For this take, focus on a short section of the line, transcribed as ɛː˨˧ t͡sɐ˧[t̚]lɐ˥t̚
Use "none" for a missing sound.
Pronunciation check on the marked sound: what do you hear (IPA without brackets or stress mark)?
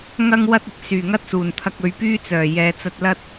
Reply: t̚